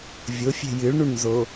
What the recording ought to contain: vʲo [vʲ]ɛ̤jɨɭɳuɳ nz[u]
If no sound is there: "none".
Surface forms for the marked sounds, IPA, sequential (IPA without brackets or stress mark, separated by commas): fʲ, o